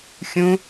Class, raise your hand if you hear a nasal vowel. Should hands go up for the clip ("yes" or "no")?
yes